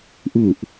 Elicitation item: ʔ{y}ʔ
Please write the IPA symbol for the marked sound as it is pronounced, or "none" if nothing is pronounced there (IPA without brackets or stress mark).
u